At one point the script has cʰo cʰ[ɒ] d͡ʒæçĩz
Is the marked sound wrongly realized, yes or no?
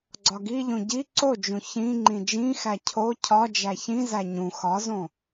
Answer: no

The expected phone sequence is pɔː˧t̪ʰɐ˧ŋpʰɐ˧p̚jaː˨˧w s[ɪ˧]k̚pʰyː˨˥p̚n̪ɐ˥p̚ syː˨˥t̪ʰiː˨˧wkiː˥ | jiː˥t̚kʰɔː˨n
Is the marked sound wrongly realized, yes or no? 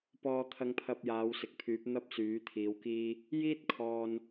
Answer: yes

